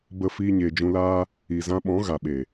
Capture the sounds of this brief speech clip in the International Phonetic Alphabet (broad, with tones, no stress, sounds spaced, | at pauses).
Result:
b ə˦ f iː˧ ɲ eː˨ d͡ʒ ũ˧ l aː˦ | i˨ z ã˧ ɓ ɔ̃˨˦ ɣ a˨ ɓ e˨